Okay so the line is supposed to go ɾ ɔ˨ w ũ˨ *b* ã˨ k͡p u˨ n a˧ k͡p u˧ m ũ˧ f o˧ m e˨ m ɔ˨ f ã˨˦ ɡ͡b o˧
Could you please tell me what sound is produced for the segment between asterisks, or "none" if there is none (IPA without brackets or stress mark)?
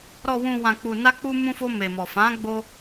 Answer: w